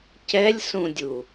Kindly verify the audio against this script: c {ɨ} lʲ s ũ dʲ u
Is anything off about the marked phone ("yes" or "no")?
yes